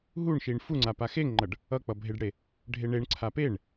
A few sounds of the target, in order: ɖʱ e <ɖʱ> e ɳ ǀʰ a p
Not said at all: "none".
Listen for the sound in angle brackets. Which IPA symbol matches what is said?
ɳ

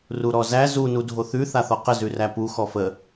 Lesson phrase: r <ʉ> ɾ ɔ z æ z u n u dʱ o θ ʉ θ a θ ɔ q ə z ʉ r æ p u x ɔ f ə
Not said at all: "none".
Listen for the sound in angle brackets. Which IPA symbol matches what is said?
u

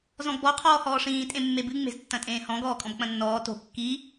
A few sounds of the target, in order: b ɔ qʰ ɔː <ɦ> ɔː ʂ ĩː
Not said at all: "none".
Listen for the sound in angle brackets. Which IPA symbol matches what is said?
h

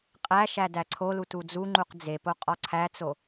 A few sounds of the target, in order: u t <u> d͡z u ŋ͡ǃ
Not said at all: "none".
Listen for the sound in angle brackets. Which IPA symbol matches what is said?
u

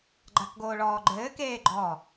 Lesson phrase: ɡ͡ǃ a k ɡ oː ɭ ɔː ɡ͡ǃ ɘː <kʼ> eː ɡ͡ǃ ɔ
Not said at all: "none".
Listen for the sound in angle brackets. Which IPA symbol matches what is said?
k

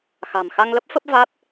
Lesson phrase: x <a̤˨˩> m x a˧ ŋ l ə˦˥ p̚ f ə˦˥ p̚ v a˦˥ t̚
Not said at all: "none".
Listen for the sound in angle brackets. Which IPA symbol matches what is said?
a̤˨˩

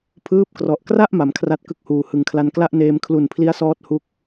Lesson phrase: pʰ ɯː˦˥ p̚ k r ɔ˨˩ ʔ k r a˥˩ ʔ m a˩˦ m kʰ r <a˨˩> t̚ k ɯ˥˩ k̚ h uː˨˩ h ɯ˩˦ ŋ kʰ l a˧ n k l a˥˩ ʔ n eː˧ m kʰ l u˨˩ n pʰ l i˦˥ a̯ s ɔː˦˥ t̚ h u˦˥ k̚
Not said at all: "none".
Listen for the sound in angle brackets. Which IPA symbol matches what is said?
a˥˩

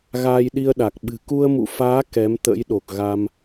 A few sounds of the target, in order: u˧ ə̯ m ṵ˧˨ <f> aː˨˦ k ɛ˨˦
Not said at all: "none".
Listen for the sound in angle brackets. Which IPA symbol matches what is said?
f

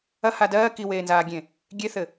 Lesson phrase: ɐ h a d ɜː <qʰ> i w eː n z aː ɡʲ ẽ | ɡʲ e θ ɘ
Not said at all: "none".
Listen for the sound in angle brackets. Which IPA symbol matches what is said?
k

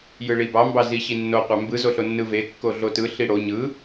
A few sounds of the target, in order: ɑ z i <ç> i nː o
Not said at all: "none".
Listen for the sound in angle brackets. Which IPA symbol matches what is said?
ɕ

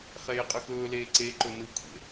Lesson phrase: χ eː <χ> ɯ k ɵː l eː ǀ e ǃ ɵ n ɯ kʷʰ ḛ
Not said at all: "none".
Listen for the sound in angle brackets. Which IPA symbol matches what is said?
qʼ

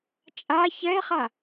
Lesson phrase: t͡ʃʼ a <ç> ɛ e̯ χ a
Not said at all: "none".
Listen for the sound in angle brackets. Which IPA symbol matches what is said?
ç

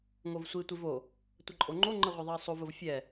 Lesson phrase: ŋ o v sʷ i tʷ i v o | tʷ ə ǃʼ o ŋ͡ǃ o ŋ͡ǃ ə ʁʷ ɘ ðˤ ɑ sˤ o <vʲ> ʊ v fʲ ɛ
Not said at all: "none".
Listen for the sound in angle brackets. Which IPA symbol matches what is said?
v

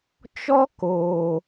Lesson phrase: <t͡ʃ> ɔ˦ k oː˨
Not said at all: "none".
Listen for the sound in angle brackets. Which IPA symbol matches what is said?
t͡ʃ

